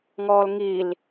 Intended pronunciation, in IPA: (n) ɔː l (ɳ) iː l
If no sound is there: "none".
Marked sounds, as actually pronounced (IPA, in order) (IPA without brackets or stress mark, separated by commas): ŋ, ŋ